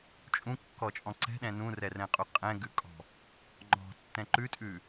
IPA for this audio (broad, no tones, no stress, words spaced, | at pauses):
t͡ʃʼũkːɔt͡ʃʼɔ̃ ǀɛ̤ɗɛ̃ nũrɛrɛ̃qʼu qʼɛ̃ɡʉkʼɔ̤ | ŋ͡ǃɔ̤tːɛ̃ ǃʉtʼʉ